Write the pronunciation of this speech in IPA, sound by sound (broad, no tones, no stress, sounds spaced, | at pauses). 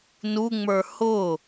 n u ŋ͡m ə˞ h ʊ